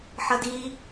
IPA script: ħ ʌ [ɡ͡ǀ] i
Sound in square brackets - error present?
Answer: yes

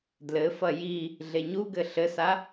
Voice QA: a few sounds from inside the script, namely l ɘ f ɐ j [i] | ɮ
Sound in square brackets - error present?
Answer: no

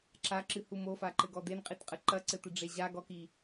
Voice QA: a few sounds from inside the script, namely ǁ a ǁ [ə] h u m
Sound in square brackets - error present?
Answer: yes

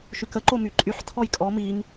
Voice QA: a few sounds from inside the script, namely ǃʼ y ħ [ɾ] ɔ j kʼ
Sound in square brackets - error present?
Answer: yes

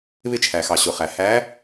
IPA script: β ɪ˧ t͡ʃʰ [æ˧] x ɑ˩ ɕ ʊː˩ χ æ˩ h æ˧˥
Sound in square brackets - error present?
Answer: yes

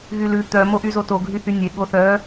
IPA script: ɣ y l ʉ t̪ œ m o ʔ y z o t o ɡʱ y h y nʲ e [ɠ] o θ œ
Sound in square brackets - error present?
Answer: no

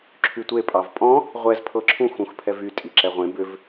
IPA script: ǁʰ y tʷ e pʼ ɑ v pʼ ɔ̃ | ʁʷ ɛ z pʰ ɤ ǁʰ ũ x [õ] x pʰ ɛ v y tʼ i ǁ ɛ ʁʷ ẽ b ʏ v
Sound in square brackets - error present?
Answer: yes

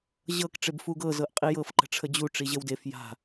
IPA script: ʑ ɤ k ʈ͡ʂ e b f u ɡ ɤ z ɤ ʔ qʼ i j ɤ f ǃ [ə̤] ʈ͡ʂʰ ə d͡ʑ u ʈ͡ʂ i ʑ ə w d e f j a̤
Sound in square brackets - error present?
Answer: no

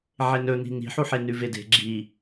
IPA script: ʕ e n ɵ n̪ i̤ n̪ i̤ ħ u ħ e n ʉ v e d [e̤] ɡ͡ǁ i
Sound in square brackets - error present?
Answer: no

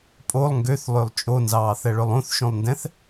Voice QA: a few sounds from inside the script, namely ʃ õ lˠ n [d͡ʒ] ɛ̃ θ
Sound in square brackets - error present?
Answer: yes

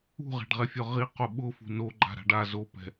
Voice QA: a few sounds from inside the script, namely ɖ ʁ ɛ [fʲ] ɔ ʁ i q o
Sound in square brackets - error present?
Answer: no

